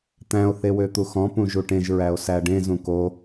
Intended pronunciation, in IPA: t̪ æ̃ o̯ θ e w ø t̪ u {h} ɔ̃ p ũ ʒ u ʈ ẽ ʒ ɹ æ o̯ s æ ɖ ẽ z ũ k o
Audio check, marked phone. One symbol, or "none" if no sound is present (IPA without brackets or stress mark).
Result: x